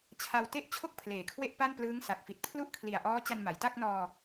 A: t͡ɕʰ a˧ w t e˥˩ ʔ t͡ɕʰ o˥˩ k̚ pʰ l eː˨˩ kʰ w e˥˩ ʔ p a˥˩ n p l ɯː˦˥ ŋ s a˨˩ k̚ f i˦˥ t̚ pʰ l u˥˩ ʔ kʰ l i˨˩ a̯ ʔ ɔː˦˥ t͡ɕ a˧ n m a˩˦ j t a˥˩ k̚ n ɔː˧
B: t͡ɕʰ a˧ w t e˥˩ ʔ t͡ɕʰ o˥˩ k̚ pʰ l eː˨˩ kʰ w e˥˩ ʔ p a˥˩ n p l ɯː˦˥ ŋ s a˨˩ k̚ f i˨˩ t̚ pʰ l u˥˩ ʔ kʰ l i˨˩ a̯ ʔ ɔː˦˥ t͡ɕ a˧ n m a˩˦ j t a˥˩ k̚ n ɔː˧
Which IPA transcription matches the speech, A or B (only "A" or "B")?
B